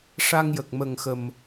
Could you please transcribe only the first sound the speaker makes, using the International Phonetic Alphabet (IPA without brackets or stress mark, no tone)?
ʂ